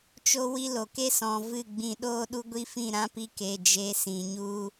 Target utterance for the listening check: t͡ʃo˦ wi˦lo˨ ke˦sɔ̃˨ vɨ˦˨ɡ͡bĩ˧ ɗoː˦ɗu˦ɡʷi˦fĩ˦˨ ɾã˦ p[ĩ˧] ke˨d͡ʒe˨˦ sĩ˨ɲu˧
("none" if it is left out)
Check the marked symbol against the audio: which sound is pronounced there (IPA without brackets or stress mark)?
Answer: i˧